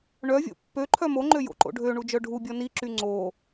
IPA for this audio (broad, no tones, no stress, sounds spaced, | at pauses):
ɳ œ vʲ o̰ pː ø ǃʰ œ m o ŋ͡ǃ ø j o̰ ǃ o̰ ɖʱ ø ɳ u d͡ʒ œ ɖʱ u bʲ ɔ n i ǁ y ŋ͡ǀ o